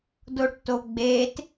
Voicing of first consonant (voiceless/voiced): voiced